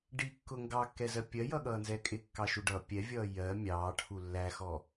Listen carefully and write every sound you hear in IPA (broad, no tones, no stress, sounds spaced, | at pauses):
ɖ i kː ʊ ŋ ɡ ɑ kː ɛ z ɜ pʲ ɜ j ʌ ɠ ʌː n z ɛː kʼ ɪ kː ɑ ʃ u ɖ ʌ pʲ ɛ vʲ ʌː j ɜ mʲ ɑː ʈʰ u lː æ x ɔ